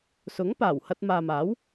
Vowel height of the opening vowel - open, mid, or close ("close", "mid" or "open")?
close